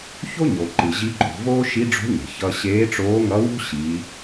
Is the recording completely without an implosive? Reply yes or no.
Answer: yes